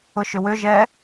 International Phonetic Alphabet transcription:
ʊ ʃ ʏ w ʏ ʒ ɛ

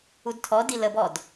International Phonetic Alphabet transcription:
u d tʰ ɔ d i l ə b ɔ d

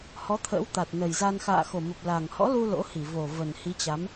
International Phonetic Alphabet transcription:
h ɔ˨˦ t̪ʰ ə̰ː˧˥ w t̪ a˨˩ t̚ n ə˨˩ j z a˧ n x a̰ː˧˨ x o˨˩ m ə˨˩ p̚ l a˨˩ ŋ h ɔ̰˧˥ l u˧ l o̰˧˥ h i˧˩ v o˨˩ v ə˨˩ n h i˨˦ t͡ɕ a˨˦ m

